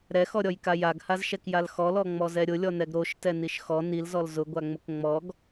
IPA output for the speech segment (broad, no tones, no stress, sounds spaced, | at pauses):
ɾ ɛ x ɔ ɾʲ ɔ j k a j a ɡ h a z ʃ ɛ k j a l x ɔ l ɔ ŋ͡m ɔ z ɛ ɾʲ ʊ lʲ ɔ n ɛ ɡ ɾ o ʃ t ɛ n i ʃ x ɔ n i l z ɔ l z ʊ ɡʷ a ŋ͡m ʊ k ŋ͡m ɔ ɡ